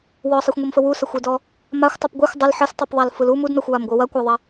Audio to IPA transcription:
w ɔ sˤ i xʷ ŋʷ i m f ə w u s ɐ xʷ ɯ d ɔ | m a xʷ tˤ u p ɡʷ ɯ xʷ dˤ ə l ħ ə s tˤ ɯ p ðˤ a l f ɯ l u m u d n ɔ xʷ w a m ɡʷ ɯ w ɐ kʷ a ðˤ ɐ

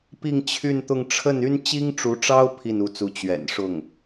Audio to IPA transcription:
p i˥˧ ŋ t͡ɕʰ y˥˧ n t̪ ʊ˥˧ ŋ ʈ͡ʂʰ ə˥˩ n y˥ n t͡ɕ i˥ ŋ ʈ͡ʂ u˧˥ ʈ͡ʂ ɑ˥ ʊ̯ pʰ i˥˩ n u˧˥ t͡s u˧˥ t͡ɕ ɥ ɛ̰˨˩ n ʂ ʊ˥˩ ŋ

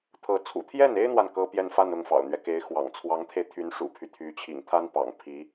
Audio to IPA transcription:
t̪ʰ ɤ˧˥ t͡sʰ ṵ˨˩ t̪ʰ j ɛ˥˩ n e˥ ɪ̯ n̪ w a˨ n k ɤ˥ p j ɛ˥˧ n f a˥˧ n ʊ˥˩ ŋ f ɑ̰˨˩ ʊ̯ n̪ ɥ ɛ˦ k e˧˥ ɪ̯ x w ɑ̰˨˩ ŋ t͡sʰ w ɑ˧˥ ŋ t̪ʰ e˧ ɪ̯ t̪ʰ y˧˥ n ʂ ṵ˨˩ pʰ y˦ t̪ʰ y˧˥ t͡ɕʰ ḭ˨˩ ŋ t̪ʰ a˥ n p ɑ̰˨˩ ŋ pʰ i˧˥

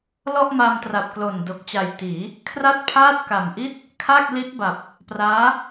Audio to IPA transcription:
l ɔ˥˩ ʔ m a˧ m t r a˨˩ p̚ k l o˨˩ n d o˨˩ k̚ t͡ɕ a˨˩ j t iː˩˦ | kʰ r a˥˩ t̚ pʰ aː˥˩ t̚ k a˨˩ m ʔ i˥˩ t̚ | kʰ a˥˩ k̚ l i˦˥ t̚ b a˨˩ p̚ | p r aː˦˥

